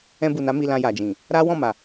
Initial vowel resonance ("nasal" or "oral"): nasal